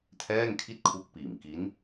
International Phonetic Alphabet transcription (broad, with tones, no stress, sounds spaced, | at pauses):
tʰ ɛː˥˩ ŋ kʰ i˥˩ t̚ kʰ u˦˥ k̚ p iː˨˩ m k i˦˥ n